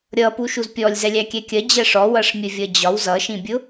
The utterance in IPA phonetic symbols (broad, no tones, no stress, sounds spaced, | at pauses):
ɾʲ ʌ p u ʃ u z pʲ ɔ lʲ z ɛ lʲ æ kʲ ɛ kʲ ɜ d͡ʑ ɜ ʂ ɔ w ʌ ʂ mʲ ə vʲ ʌ d͡ʑ ɒ w z ʌ ʃ ĩ bʲ ʊ